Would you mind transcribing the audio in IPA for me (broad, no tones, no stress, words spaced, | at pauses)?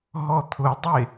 ɦɔt̪ʰʊdˤe